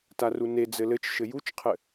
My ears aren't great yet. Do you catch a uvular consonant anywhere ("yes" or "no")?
yes